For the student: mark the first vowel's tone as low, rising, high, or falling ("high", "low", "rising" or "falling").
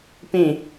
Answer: falling